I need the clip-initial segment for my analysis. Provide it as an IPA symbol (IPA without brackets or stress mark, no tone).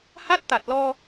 h